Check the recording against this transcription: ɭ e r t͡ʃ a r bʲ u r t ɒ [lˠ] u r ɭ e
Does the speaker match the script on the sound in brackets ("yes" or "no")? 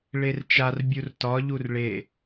no